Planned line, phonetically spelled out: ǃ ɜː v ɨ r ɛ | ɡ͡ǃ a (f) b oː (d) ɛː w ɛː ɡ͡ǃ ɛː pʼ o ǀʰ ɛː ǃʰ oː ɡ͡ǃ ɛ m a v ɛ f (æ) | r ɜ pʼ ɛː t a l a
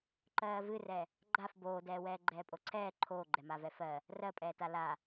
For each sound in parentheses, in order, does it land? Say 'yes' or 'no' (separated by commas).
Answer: yes, yes, no